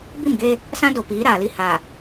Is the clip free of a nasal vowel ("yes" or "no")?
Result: no